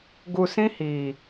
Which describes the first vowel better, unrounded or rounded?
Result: rounded